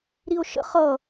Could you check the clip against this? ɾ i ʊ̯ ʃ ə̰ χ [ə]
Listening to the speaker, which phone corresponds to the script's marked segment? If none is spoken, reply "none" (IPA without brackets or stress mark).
ʌ